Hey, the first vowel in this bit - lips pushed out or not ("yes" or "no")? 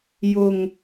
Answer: yes